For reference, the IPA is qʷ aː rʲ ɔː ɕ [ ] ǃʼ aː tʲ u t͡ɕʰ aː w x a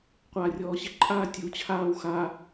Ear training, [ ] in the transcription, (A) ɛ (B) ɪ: B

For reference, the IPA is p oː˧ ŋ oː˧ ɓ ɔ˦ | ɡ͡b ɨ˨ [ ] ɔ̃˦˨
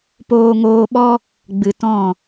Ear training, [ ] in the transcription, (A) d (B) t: B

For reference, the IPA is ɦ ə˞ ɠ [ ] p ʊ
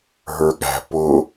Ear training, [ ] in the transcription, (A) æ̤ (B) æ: A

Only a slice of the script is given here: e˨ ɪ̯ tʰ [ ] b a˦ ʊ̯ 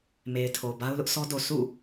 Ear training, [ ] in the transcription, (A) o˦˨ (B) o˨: B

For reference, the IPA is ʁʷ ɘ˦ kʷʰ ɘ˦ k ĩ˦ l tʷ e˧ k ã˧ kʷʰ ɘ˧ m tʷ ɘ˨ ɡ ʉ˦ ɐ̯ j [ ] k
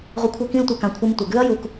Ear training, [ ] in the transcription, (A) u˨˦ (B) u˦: B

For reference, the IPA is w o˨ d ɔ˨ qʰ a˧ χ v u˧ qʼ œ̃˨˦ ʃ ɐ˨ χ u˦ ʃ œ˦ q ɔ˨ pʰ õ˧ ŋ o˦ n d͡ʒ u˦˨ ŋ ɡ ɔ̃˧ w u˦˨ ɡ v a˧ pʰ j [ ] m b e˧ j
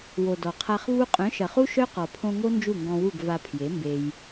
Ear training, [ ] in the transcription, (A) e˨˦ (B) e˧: A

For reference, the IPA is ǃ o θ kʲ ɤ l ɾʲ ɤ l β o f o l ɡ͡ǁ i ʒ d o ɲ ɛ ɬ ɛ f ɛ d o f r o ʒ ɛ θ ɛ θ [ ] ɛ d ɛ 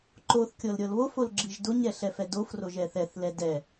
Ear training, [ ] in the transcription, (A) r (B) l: B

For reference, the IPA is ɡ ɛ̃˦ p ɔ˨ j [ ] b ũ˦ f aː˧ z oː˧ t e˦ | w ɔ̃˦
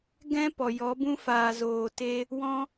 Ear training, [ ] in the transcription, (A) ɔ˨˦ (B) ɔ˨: A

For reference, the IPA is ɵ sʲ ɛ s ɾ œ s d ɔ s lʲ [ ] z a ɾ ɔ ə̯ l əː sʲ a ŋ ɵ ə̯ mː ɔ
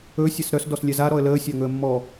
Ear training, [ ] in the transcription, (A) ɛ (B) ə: A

